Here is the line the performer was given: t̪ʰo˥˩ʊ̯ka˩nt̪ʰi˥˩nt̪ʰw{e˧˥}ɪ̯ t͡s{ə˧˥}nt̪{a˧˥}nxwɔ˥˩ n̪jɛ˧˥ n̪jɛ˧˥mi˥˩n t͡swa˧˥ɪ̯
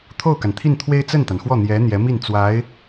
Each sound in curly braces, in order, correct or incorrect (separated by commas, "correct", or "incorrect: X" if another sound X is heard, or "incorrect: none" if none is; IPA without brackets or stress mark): incorrect: e˥, incorrect: ə˥˩, incorrect: a˩